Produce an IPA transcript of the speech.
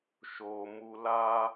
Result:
ʃ o˧ m u˧ l a˦

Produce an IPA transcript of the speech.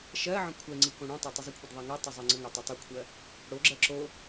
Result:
ʃ ɜ ʕ ə̃ kʷʰ ɛ ŋ͡ǀ i k õ ɽ õ tˤ a tˤ ə zˤ ə kʷʰ ə d ðˤ a ŋ a tˤ o zˤ ɜ ŋ͡ǀ ə ŋ a tˤ ɜ tˤ o kʷʰ ɜ | ɽ o ɡ͡ǁ ɜ ǁ o

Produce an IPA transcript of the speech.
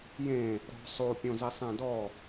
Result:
j ẽ | ɾ ɔ̤ sˤ o pʲ õ z i sˤ ẽ d ɔ

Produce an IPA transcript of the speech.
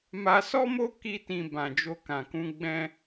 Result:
m a˧ s ɔ˦ m o˦ k i˧ t ĩ˨ b ã˨ d͡ʒ o˧ k ã˨ k ũ˧ ɡ͡b ɛ̃˧

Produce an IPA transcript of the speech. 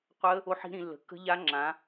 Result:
qʷ ə˦˥ | o˦˥ ħ i̤˦˥ ɾ ĩ˨˦ lː ə̤˨˦ kː ə̤˦˥ ʎ a˦˥ ŋ͡ǁ ã˨˦

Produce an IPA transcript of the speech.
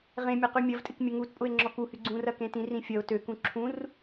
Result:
ʁ ẽ mʲ ɐ q y mʲ ɐ v tʼ ɪ k mʲ ə ŋ u t pʼ ʊ e̯ ŋ͡ǁ ɔ k u h y ɡ͡ǀ ũ r ɐ k ẽ t ĩ r ĩ fʲ ɐ o̯ t ø k ũ ǁʰ ũ r

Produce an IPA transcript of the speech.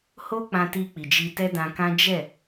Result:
h o˦ k͡p ã˧ t i˧ k͡p i˨ d͡ʒ i˧ t ɛ˦ d ã˧ k ã˦ d͡ʒ ɛ˦˨

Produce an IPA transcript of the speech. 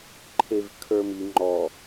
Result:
ǃʰ e v kʰ ə˞ m i ŋ͡ǃ ɔ

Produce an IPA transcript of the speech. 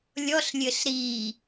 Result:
lʲ ɔ ɬ lʲ ɘ ɬ ɾ i

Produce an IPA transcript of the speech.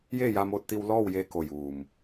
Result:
j eː˥˨ j a˧ m oː˧ t̚ t̪ i˧ w l ɔː˥˨ w j eː˧ k o˧˩ j uː˩ m

